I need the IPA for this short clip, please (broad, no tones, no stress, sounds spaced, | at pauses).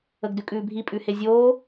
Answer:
ə ɡ d ʉ kʼ ʉː bʱ i pʼ ʉ h e zʲ oː